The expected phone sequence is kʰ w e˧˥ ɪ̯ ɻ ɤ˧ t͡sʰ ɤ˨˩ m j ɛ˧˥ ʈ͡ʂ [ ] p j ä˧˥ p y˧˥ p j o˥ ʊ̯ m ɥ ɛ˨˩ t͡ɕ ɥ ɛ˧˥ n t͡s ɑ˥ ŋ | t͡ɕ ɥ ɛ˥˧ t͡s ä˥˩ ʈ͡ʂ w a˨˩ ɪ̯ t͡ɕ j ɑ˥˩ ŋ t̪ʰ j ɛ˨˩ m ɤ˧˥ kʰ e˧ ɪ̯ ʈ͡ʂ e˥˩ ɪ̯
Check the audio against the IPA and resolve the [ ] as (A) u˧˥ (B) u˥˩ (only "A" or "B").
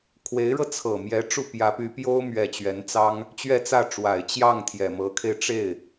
B